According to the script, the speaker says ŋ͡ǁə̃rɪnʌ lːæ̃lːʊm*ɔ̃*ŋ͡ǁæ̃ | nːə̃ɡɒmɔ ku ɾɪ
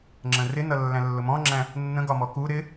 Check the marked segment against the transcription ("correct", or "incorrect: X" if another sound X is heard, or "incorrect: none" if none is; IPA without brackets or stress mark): correct